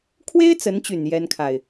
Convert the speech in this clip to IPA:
kʰ w e˥ ɪ̯ t͡s ə˧˥ n t͡ɕ y˨˩ n j ɛ˥ n kʰ a˨ ɪ̯

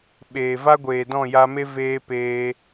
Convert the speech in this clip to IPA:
ɓ eː˨ v a˦ ɡʷ eː˨ d ɔ̃˦˨ j a˧ m e˦ v eː˧ p eː˧

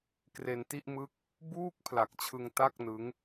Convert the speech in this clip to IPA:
k r e˧ n t i˥˩ ʔ m ɯ˥˩ k̚ | b uː˥˩ k̚ pʰ l a˨˩ k̚ t͡ɕʰ ɯ˧ ŋ t a˥˩ k̚ n ɯ˦˥ ŋ

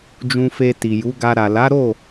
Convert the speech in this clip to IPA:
d͡ʒ ũ˧ f e˧ t i˨ j u˨˦ ɡ a˧ ɾ a˨ l a˨˦ ɾ o˦˨

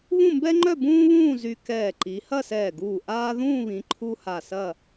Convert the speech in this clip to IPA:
β ũ˥˧ m b ɛ˥ ŋ͡ǃ œ˥˧ b ũː˥ β ũː˥˧ z y˧ k ɛː˧˩ ǃ i˩˧ h ɐ˥˧ s ɛː˧˩ ɡ uː˧˩ ʔ aː˧ ð ũː˥˧ β ĩ˩˧ ǃʰ u˧ h a˧˩ s ɐ˥˧

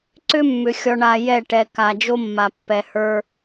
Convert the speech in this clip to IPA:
ǀ ʏ˦ mː ʏ˨ xʲ ɔ˨ ɳ a˨ j ɛ˦˨ ʈ ɛ˨ k a˨ d͡ʒ o˦ mː a˨ pː ɛ˨ h ə˞˦

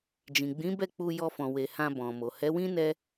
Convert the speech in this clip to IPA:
d͡ʒ ĩ˨ ɡ͡b ĩ˨˦ b ɛ˦˨ k͡p u˧ j ɔ˧ f ɔ̃˨ w e˨ h ã˧ b ɔ̃˨ m o˨ h ɛ˨˦ w ĩ˦ n ɛ˦

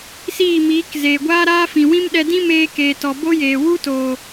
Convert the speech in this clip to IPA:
s iː˦˨ m iː˨˦ k z eː˨ ɡʷ aː˦ ɾ aː˦ f ĩ˨ w ĩ˦ m ɗ ɛ˧ d ĩ˦ m eː˧ k eː˨ t ɔ˨ b o˦ j eː˨ w u˦ t o˨

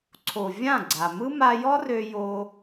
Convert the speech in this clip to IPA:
ǀʰ o˨ vʲ ã˦˨ ɡ͡ǀ a˨ m ɯ˦ m a˧ j ɔ˦ r ø˧ j o˧

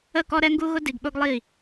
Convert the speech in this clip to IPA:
ə˦˨ k ɔ˦ ɾ ɛ˦ ŋ ɡ u˦ ɣ ʊ˦ d i˨ ɡ ɓ ʊ˧ ɡ lˠ i˦˨

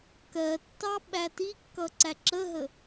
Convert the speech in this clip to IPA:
k ɜ tː ɑ ɓ æ t i kː ʌ ǀ æ ǁ ə ɦ ə

